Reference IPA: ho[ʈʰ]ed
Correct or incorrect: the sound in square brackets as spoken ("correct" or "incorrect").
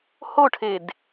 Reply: correct